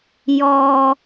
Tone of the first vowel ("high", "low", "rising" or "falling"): low